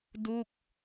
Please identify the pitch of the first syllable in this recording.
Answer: falling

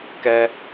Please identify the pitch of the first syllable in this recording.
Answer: high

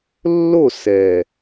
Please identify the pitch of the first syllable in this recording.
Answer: falling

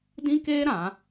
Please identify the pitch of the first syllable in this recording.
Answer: high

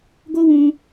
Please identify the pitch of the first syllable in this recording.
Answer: high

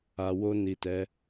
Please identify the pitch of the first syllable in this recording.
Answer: low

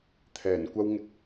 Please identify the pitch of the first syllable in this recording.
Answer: low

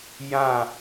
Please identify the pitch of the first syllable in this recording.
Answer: falling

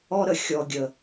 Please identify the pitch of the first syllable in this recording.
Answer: high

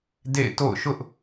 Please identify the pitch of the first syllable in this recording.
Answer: falling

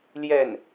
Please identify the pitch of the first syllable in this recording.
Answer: falling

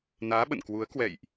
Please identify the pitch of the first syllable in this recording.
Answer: rising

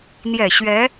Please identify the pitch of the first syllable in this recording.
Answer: low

